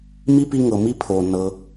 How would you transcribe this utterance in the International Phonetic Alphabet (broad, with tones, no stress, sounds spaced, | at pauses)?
m i˥ p i˦ ŋ ɤ˩ m i˥ pʰ oː˩ nː ɤ˨